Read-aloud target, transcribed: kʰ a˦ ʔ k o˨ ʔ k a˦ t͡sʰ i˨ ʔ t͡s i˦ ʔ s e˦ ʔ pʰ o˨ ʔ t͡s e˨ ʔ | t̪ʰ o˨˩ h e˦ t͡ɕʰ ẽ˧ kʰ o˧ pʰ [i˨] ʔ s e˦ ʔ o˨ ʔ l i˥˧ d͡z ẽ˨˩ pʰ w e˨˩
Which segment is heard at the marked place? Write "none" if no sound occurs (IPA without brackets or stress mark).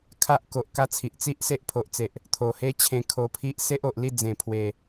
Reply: i˦